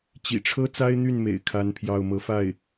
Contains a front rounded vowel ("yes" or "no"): yes